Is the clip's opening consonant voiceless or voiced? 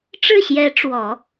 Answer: voiceless